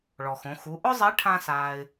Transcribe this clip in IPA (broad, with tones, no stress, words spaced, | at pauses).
ɭɔ˩xõ˩˧ xu˩˧ʔʊ˥zˤe˧˥ ʈʰã˥saː˧ɪ̯